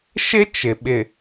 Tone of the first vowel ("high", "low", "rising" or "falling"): high